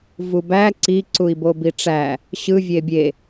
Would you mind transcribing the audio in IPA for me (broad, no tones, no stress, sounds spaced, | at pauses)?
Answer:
v u b æ ǀ i ǀ u i̯ b o b i ʈ͡ʂ æ | ɕ ɯ vʲ e bʲ e